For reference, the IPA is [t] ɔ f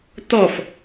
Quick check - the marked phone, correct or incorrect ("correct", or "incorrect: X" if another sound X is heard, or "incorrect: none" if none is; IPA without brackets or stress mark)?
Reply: correct